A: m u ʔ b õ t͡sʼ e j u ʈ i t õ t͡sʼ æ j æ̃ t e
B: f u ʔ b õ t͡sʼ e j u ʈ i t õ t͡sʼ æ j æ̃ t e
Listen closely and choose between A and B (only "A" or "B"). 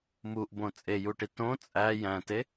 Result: A